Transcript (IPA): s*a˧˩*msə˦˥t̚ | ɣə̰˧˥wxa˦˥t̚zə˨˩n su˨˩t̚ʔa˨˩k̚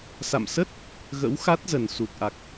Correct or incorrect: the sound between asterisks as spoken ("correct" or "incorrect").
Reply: incorrect